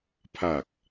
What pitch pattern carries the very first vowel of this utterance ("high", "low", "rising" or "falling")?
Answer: low